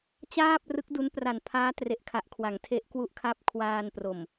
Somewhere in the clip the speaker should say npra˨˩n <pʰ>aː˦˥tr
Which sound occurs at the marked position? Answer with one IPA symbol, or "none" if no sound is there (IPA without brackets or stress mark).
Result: pʰ